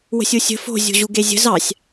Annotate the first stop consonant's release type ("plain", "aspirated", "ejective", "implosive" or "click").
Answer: plain